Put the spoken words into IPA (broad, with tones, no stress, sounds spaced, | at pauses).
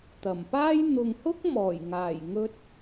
t̪ ɐ˨˩ m p aː˥ j n̪ ʊ˨ ŋ h ʊ˥ k̚ m ɔː˨˩ j ŋ aː˨˩ j ŋ ɵ˧ t̚